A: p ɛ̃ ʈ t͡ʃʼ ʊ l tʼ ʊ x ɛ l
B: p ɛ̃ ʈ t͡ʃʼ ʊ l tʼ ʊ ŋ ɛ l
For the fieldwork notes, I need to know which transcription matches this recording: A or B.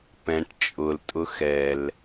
A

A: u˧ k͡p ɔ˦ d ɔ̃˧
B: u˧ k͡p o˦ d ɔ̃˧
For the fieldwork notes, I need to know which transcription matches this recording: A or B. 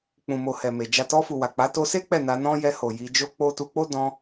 B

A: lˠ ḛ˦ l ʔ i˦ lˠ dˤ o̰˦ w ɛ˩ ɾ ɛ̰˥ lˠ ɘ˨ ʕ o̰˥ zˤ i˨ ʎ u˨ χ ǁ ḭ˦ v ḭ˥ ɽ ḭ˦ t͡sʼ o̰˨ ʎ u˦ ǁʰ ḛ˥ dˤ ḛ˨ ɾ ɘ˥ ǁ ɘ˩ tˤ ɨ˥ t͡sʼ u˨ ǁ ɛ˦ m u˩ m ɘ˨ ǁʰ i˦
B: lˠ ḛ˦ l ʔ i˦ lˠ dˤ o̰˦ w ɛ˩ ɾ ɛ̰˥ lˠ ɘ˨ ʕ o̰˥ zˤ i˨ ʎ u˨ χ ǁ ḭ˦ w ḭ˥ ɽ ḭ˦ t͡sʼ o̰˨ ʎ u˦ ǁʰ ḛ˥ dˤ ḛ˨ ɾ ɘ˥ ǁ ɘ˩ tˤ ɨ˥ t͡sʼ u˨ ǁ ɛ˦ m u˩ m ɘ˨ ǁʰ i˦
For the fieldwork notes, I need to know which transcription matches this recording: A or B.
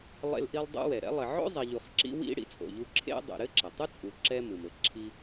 B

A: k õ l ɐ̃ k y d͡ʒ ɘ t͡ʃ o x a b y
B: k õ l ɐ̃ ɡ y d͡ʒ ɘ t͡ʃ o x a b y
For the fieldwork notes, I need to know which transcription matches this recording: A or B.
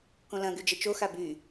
B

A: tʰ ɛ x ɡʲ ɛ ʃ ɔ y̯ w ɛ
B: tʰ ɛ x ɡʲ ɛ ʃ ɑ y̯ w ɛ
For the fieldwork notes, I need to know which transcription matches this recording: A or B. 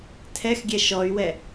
A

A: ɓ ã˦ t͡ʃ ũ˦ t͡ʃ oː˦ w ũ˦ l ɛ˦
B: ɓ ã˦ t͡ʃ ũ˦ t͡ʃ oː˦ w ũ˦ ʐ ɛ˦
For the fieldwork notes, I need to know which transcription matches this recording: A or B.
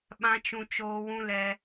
A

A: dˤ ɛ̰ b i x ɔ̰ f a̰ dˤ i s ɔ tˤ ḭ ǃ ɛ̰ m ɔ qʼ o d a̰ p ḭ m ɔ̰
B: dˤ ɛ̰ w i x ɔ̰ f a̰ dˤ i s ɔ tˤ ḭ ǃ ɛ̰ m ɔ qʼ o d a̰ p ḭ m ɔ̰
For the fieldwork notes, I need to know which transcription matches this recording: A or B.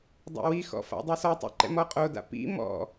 B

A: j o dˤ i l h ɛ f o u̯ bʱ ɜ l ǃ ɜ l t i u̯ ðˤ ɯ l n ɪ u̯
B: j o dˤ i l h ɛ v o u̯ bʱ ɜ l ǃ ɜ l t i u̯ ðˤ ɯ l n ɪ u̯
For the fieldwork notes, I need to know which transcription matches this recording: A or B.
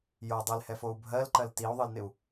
A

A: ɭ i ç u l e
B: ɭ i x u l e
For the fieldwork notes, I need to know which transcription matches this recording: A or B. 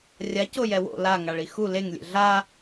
B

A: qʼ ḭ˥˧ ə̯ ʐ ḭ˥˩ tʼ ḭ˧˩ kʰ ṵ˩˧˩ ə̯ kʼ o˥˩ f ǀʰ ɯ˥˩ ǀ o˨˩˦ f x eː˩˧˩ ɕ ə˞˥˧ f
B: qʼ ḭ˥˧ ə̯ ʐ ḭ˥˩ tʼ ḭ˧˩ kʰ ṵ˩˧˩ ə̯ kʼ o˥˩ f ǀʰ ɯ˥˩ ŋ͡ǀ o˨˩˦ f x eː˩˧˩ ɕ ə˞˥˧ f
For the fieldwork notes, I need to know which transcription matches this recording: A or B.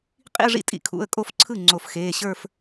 B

